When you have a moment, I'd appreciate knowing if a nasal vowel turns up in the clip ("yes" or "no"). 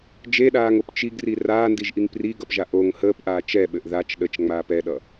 no